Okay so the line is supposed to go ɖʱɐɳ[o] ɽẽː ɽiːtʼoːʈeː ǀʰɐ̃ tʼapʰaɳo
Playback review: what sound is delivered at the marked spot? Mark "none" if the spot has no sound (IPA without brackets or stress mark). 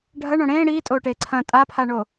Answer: õ